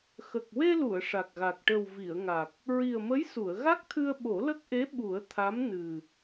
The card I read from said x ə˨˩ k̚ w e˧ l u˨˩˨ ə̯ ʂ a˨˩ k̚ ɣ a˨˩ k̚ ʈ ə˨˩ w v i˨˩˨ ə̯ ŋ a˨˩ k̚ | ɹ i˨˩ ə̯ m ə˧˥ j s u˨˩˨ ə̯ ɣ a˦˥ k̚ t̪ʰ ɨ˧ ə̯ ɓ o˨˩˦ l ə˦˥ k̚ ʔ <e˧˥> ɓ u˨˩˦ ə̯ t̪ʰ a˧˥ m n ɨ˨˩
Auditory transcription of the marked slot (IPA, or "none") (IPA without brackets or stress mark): e˧˥